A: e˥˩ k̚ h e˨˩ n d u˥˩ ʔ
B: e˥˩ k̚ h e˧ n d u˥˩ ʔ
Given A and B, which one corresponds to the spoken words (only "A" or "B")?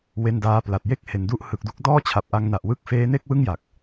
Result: A